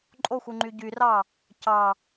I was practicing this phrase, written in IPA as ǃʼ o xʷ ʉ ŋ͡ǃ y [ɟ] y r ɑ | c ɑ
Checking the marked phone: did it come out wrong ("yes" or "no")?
no